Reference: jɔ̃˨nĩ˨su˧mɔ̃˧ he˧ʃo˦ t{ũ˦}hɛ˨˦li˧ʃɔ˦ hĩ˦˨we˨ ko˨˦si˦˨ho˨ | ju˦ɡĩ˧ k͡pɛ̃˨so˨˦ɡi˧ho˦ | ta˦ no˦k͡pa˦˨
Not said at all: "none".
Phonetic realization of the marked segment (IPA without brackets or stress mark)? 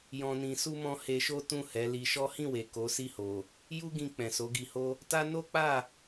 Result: ũ˦˨